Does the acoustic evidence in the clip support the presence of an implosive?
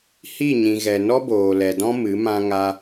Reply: no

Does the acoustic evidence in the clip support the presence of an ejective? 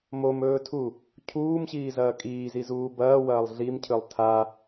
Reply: yes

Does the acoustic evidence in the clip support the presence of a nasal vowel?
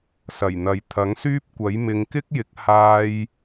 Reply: no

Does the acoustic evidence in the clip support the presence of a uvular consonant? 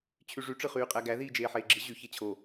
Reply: yes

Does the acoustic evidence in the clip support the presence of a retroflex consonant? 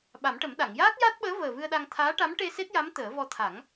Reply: yes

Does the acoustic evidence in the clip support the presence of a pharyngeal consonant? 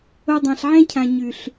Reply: yes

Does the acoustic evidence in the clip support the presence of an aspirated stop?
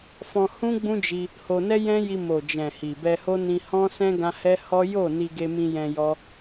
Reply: no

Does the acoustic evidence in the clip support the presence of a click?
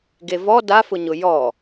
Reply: no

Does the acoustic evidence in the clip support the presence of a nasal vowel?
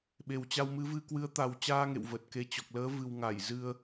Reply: no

